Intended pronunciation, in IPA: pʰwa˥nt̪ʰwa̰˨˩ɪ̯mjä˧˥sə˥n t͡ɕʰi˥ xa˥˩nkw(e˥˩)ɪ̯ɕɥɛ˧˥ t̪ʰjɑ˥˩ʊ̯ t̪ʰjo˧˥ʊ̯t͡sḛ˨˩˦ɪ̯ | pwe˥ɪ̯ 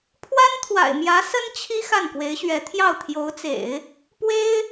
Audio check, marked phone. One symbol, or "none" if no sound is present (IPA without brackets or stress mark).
e˧˥